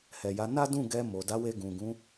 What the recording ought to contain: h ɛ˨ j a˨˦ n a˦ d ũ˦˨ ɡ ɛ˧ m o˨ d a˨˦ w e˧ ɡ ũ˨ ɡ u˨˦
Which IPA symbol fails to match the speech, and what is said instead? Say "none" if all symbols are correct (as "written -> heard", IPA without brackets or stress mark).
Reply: u˨˦ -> ũ˨˦